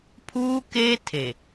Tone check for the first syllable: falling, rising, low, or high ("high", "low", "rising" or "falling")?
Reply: high